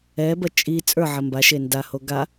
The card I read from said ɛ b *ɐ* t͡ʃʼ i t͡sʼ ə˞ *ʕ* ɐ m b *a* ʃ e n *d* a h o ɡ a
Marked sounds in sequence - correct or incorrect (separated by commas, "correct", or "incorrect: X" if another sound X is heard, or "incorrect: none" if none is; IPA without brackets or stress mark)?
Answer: correct, correct, correct, correct